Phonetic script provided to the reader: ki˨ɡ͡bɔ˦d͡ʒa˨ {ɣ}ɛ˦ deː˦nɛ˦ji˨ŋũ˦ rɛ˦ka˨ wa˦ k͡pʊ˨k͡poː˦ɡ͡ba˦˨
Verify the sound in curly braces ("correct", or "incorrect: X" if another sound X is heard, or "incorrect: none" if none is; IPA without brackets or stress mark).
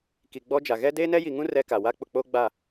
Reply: correct